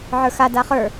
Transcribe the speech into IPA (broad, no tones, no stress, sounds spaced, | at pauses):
ʕ ə˞ x a d a χ ə˞